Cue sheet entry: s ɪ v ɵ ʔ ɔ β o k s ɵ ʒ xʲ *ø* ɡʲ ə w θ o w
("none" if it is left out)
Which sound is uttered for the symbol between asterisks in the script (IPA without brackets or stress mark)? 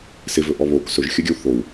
ɵ